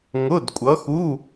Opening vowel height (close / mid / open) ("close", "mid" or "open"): close